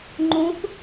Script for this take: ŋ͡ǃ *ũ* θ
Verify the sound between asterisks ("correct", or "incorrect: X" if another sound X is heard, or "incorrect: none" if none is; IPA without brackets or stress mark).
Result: correct